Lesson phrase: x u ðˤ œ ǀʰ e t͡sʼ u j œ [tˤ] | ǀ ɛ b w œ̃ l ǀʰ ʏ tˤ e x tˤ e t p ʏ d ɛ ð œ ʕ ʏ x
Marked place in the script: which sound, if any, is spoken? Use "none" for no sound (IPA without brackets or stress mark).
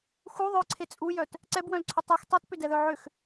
t